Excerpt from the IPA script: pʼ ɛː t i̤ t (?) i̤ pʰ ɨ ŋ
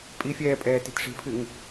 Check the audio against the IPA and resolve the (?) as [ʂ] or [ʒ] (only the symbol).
ʂ